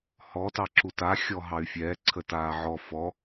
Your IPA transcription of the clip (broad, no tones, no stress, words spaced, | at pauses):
hɔ tɑǁuta xʲɔɦɑy̯fʲɛː ǀʰətaːʕɔ fɔ